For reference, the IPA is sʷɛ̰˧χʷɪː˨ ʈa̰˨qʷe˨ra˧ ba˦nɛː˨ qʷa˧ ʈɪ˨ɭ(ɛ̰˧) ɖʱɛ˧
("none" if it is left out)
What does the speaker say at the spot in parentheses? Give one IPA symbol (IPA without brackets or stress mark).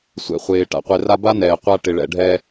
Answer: ɛ̰˨